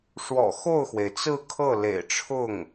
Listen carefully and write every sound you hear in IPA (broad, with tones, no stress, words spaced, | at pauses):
ʂwɔ̰˨˩xo˥˩ʊ̯xwe˩ɪ̯ t͡sɹ̩˥˧kʰɤ˥˩ lḛ˨˩ɪ̯ʈ͡ʂʰʊ˥˩ŋ